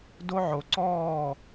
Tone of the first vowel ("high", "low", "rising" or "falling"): high